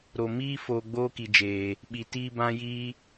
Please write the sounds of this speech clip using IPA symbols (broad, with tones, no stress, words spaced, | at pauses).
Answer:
ɾo˨miː˦ foː˧ɡ͡boː˦ki˨d͡ʒeː˨ | ɓi˨tiː˧ bã˧jiː˧